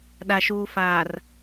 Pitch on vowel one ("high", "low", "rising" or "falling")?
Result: low